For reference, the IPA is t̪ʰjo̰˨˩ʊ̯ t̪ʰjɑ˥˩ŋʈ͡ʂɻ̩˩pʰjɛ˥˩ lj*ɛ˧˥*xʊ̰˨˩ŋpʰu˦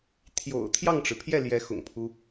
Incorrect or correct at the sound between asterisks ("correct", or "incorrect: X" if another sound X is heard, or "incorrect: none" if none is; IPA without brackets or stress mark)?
correct